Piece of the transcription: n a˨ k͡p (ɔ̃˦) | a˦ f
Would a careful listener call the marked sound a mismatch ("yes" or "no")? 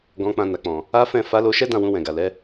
yes